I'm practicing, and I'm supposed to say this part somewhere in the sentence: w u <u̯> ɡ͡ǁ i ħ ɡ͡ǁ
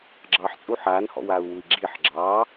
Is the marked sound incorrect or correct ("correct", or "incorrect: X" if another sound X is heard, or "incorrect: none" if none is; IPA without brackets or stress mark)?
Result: incorrect: i̯